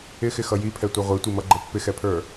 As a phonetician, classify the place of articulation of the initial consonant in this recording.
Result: velar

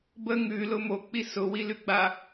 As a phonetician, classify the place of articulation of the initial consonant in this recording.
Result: labial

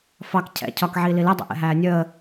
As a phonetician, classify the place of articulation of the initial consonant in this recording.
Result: labial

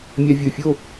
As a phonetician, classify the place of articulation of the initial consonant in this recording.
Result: labial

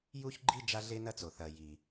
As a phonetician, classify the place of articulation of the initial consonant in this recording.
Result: palatal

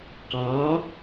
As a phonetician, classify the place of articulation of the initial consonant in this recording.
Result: uvular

